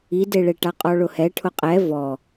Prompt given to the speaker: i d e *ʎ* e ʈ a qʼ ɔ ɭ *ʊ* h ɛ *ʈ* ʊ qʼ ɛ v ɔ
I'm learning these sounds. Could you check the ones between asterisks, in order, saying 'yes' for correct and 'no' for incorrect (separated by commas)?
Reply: no, yes, no